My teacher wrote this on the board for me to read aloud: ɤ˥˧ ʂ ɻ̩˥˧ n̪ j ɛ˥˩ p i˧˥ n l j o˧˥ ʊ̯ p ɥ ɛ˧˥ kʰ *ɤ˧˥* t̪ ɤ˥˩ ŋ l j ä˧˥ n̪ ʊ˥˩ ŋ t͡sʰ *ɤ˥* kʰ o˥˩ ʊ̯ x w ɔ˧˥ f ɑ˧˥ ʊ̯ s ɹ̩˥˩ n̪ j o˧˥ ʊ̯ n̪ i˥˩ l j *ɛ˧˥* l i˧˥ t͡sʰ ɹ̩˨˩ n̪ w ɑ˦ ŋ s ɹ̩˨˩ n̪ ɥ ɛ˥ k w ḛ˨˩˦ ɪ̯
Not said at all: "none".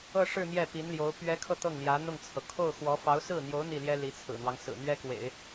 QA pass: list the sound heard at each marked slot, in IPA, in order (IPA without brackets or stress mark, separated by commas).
ɤ˧, ɤ˩, ɛ˥